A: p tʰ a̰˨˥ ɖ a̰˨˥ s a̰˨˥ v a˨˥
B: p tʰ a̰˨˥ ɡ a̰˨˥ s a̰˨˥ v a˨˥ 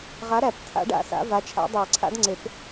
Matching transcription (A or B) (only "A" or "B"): A